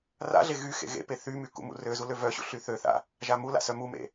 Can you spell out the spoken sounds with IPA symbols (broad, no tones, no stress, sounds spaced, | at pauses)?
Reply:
r a̰ ɮ e ɣ y x ḛ ɣ ḛ p e θ y m y k ṵ m ṵ r ø z u l ø v œ ɕ ṵ ɬ y θ ø θ a̰ | ʒ a m u l a̰ s œ m u m ḛ